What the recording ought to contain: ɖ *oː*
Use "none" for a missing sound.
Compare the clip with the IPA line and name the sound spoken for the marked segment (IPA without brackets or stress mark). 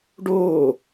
oː